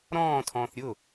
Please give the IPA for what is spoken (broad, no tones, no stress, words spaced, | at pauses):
ɾɔ̃ːtʰɔ̃ːθ ɾʲʊ